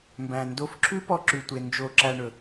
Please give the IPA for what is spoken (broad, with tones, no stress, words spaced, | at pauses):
mbæ̃˨ndo˧fǁʰʉ˦ pɔ˦ǁʉ˧tʷe˧ nd͡ʒo˧ǁæ˧ɳɵ˨